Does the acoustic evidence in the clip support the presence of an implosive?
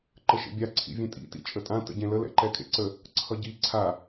no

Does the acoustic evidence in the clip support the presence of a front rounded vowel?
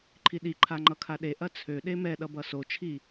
yes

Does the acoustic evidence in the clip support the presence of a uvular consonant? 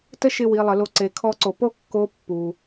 no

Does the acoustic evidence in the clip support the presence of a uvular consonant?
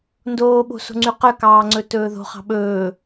yes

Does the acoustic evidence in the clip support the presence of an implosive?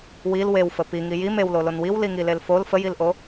no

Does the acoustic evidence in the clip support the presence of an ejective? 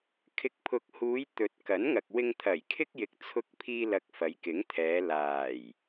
no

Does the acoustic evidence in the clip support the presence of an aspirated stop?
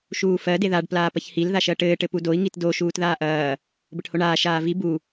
no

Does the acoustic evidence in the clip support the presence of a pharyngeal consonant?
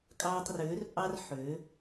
yes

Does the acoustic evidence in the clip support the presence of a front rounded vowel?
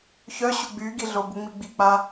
yes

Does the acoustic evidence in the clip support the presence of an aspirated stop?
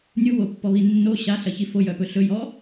no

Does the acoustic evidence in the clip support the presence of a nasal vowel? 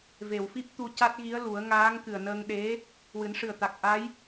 no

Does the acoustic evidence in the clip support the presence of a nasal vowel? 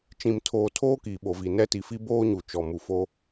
yes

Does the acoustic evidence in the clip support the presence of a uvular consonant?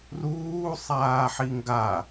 no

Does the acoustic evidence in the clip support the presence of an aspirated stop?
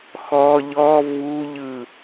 no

